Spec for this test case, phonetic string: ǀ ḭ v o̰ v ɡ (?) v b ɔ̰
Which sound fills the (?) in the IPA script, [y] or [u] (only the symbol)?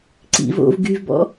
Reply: y